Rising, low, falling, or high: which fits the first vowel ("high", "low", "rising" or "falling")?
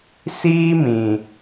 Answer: high